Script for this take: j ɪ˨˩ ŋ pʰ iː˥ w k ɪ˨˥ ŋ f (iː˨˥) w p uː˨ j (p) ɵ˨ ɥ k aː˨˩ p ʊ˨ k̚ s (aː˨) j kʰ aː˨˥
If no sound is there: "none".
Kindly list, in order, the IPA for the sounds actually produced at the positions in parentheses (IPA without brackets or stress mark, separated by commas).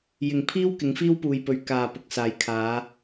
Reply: iː˥, p, aː˨˥